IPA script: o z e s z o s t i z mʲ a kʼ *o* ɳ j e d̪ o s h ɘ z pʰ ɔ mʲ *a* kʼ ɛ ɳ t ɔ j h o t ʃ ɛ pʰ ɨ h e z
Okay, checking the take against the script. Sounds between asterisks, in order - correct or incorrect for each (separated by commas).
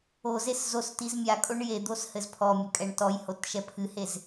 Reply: correct, incorrect